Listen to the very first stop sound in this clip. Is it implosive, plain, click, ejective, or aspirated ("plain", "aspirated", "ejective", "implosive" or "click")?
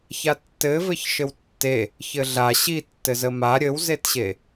plain